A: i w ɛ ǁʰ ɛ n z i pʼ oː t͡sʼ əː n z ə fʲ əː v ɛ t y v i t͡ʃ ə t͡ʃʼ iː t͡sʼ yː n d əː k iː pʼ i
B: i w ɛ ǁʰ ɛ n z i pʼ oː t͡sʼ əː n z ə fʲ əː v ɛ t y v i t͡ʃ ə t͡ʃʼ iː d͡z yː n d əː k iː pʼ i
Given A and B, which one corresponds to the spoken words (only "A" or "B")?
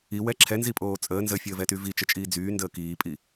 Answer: B